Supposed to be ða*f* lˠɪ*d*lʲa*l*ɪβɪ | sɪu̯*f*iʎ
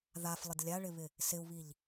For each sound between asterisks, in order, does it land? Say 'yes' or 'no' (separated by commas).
yes, yes, no, no